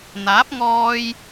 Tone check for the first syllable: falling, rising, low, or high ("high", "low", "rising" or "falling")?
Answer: rising